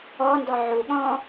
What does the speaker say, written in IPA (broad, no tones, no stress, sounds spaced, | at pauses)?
ɔ n d ɔ ʕ u ɠ ɔ̃